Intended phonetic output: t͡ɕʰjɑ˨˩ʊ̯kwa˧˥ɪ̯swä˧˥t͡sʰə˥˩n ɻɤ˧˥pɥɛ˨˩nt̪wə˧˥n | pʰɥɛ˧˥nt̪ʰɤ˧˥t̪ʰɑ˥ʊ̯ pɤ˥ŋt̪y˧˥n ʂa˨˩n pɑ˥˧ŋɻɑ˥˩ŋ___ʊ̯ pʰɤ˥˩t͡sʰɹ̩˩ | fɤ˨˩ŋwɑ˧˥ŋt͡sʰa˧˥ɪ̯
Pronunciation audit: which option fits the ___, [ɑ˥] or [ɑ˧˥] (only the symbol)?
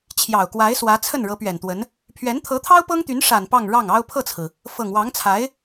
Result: ɑ˥